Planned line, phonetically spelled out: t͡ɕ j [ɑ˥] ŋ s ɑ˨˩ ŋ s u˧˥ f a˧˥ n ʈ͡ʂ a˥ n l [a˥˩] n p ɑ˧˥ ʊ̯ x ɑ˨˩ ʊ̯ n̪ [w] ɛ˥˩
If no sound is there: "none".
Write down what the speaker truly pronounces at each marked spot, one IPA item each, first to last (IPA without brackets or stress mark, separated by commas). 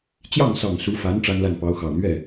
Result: ɑ˥˩, a˥˩, ɥ